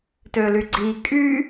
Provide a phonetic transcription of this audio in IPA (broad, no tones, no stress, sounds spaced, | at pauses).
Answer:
t ø l y ɡ͡ǀ i kʼ y